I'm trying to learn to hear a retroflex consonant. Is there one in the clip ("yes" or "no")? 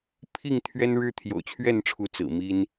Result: yes